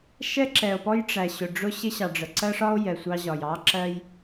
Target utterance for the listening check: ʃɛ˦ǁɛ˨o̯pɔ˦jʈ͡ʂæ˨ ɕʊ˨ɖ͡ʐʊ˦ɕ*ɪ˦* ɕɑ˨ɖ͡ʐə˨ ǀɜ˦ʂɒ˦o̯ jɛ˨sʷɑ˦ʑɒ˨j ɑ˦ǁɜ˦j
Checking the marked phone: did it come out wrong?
no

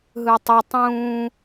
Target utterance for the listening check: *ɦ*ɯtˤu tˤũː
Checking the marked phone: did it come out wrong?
no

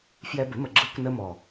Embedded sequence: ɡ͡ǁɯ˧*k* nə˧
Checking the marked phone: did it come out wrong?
no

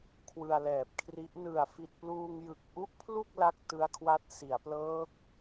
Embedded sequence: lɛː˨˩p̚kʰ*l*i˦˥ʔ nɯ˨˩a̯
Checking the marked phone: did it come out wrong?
yes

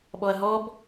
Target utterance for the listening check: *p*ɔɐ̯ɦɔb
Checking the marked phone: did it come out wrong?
yes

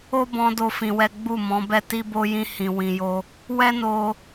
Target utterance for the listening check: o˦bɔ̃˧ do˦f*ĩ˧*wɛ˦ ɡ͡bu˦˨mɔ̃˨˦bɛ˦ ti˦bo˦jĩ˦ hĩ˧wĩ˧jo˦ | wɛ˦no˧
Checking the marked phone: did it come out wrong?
no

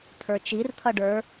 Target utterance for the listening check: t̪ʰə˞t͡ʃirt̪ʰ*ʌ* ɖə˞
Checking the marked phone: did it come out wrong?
no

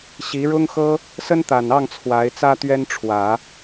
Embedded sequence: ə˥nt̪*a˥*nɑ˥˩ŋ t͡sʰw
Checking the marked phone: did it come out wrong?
yes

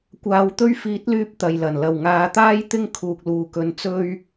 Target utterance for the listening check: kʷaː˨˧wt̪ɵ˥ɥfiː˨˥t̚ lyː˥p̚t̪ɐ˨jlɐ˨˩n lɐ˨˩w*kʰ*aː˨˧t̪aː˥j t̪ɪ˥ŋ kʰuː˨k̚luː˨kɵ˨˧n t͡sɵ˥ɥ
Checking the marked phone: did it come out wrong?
yes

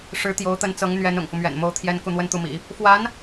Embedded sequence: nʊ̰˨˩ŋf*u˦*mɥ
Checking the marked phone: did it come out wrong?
no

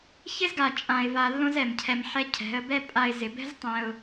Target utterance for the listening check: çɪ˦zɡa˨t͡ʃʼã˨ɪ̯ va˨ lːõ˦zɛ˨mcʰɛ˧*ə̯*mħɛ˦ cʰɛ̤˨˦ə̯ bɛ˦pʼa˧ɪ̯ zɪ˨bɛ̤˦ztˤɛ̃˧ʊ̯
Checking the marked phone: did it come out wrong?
yes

